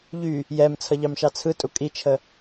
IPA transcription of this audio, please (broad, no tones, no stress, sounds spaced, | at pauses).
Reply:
ʎ y | j ɛ m t͡sʰ ʌ ʎ ɑ m ʃ ɑ t͡sʰ ɯ tʼ u kʼ i t͡ʃʰ ə